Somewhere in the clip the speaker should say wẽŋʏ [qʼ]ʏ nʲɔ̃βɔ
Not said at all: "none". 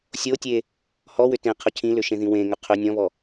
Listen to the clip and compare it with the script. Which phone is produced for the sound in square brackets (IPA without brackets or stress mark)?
qʰ